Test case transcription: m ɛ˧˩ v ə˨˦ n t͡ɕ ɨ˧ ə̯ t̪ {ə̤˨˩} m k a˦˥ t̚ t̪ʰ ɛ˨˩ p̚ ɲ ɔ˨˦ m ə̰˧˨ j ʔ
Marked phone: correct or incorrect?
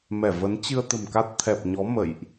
correct